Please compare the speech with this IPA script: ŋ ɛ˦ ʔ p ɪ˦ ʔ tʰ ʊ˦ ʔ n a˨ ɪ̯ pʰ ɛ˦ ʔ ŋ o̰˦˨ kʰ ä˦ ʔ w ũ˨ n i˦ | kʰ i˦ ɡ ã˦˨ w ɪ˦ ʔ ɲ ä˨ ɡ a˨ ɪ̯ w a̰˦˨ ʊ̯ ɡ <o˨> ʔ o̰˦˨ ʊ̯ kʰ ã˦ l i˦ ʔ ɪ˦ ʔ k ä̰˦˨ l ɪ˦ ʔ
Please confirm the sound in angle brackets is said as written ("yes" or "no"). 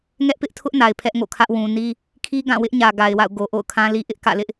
yes